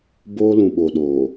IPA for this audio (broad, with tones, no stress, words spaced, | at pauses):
boː˦lũ˨ɓo˨ɗoː˨